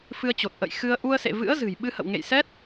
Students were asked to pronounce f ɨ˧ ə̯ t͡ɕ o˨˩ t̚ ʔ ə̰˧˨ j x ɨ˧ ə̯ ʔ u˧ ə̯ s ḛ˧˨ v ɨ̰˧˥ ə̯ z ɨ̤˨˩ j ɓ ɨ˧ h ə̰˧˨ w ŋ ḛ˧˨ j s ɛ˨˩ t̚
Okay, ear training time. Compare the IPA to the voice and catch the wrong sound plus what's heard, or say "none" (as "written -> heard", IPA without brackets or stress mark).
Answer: ɛ˨˩ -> ɛ˦˥